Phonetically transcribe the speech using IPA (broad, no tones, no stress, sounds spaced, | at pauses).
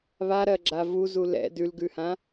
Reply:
β a ɾ ɜ ɡ͡ǁ a v u z u l ɛ̰ d ʉ l ɡ ʉ h ã